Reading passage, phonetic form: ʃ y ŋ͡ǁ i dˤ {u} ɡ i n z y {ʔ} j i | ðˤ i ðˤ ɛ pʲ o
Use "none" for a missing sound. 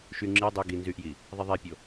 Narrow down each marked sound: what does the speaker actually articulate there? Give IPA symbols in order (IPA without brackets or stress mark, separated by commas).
y, ʔ